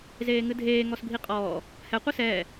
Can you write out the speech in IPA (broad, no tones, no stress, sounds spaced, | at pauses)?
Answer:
z eː ŋ ɨ dʱ eː ŋ ɔ s bʱ i qʼ ɔː | h ɛ qʷ i s ɛː